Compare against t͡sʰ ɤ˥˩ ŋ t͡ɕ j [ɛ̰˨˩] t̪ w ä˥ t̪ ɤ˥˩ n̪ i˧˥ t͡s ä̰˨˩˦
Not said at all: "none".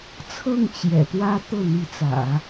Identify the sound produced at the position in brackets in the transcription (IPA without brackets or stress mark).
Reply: ɛ̰˨˩